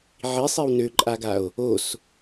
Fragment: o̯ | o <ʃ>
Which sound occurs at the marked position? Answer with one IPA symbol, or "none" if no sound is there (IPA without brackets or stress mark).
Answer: s